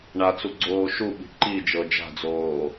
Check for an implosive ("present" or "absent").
present